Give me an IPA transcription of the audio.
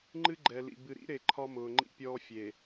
ŋ͡ǃ ɨ˦ ɡ͡ǃ ɛ˨ l ḭ˨ b ɨ˨ ɾ ḭ˦ ɾ e˨ ǃʰ ɒ˦ m ʊː˨ ŋ͡ǃ ḭ˦ pʲ ɔː˦ fʲ e˨

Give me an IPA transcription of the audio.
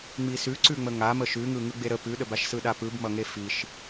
ŋ͡m i s ʉ ǀ ʉ ŋ͡m ə ŋ a m ə ʃ ʉ ŋ ɯ ŋ ɯ ɡ͡b e ɾ ə p ʉ ɗ ə b a ʃ s ɯ ɗ a p ɯ b m ʌ ŋ e f i ʃ

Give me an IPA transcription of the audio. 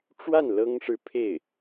ʈ͡ʂ w a˥˩ n l ɤ˥ ŋ ʂ ɻ̩˥˧ pʰ e˥˩ ɪ̯

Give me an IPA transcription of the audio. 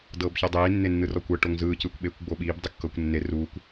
d ɤː b ç ɛ dˤ iː nː e nː ɯ r ɔ kʷ ɤ ʈ o ŋ z ɯː c ɯː kʷ ɓ eː kʷ ɡ͡b o ɓ iː b dˤ ɯ kː ɤː kʷ nː e r uː kʷ

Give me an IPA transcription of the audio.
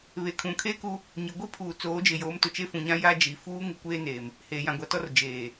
β e˨ kʰ ũ˨ kʰ eː˦ k u˦ | ɲ ɪ˨ ɡʷ i˦ pʰ uː˨ t͡s oː˨˦ d͡ʒ ɪ˨ j oː˨˦ m t ʊ˨ t͡ʃ e˦ f ũ˨ ɲ ã˦ j a˦ d͡ʒ i˨ f uː˦ ŋ ɪ˦ kʷ eː˦ n eː˨ m | h eː˨ j ã˨ ɡʷ a˨ t ɔ˦ r d͡ʒ eː˨

